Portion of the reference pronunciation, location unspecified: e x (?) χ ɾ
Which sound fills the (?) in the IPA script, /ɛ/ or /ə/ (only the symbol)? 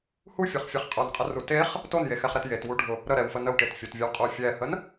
ɛ